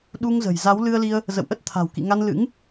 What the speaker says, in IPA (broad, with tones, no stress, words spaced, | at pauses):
ɗu˧ŋzə̤˨˩jza˨˦w lɨ˧ə̯li˧ə̯ | zə̰˧˨wʔə˦˥t̚ t̪ʰa̤˨˩w kḭ˧˨ŋa˧n lɨ̰˧˥ŋ